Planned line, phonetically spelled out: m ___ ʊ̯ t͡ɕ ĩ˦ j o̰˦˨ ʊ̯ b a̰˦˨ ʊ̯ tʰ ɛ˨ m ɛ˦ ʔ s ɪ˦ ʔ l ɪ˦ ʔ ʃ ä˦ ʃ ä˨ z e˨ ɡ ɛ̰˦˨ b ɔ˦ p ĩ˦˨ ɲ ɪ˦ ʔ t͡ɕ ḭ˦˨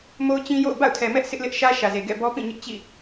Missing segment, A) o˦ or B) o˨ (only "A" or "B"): A